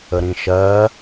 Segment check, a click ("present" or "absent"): absent